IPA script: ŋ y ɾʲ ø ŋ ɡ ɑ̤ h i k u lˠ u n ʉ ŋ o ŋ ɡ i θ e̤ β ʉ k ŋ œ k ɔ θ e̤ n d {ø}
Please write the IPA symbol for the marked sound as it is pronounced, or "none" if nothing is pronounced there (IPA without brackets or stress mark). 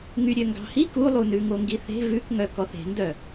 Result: œ